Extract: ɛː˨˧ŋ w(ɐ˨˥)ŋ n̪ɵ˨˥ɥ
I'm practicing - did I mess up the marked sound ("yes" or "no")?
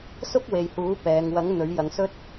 no